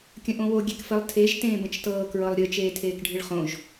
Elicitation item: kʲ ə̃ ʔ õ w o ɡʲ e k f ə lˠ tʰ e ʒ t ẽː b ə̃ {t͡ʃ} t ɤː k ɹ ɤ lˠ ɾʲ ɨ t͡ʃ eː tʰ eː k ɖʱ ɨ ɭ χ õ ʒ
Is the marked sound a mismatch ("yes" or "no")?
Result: no